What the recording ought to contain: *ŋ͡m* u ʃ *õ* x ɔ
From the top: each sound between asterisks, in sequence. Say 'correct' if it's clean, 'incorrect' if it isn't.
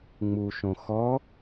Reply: correct, correct

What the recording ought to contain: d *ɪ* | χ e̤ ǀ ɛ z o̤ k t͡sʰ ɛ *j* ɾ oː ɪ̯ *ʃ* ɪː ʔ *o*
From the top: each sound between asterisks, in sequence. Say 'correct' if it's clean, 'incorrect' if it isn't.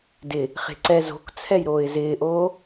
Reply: correct, correct, incorrect: z, incorrect: oː

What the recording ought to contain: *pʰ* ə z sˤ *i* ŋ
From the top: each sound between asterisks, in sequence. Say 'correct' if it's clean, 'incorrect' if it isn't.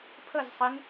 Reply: correct, correct

